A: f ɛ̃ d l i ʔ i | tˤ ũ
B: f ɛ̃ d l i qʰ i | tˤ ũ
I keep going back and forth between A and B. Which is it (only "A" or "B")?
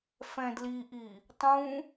A